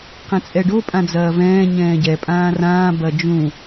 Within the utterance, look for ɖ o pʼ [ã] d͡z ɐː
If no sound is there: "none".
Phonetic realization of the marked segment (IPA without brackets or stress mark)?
ã